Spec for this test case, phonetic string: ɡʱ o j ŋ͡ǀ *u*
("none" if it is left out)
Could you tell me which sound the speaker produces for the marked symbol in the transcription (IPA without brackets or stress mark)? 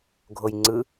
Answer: ɯ